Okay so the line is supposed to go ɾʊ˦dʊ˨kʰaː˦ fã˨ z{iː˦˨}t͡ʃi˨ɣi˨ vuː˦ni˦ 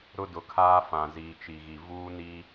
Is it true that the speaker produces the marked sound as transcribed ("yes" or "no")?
no